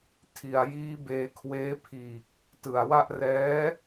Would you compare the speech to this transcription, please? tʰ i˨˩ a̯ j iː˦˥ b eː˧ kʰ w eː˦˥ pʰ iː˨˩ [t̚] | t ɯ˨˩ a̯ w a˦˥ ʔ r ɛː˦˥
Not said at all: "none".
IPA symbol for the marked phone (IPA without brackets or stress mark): k̚